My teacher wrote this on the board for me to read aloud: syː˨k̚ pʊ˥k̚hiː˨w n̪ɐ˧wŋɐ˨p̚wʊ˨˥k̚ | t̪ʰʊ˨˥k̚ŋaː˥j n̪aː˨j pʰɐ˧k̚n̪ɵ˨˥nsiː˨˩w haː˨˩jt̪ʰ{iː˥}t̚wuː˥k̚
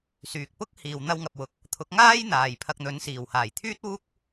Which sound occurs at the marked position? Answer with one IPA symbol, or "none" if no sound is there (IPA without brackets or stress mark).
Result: yː˥